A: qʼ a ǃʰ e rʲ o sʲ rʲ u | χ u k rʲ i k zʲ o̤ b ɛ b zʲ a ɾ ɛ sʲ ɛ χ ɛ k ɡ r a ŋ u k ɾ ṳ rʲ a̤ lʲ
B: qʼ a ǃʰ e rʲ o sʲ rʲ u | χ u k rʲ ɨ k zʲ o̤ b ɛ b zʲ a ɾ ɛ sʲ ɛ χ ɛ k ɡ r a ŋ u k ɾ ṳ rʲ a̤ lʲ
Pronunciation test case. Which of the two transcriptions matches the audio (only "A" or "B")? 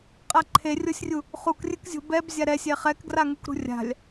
B